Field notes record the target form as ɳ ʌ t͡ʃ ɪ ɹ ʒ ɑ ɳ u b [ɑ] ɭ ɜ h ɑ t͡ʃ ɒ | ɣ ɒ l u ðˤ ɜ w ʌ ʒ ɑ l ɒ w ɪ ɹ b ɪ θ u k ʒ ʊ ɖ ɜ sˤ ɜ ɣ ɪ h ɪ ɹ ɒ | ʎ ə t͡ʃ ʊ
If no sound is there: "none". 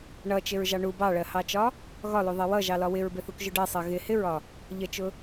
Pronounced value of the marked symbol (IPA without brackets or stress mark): ɑ